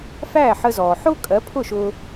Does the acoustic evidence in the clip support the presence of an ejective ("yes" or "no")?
yes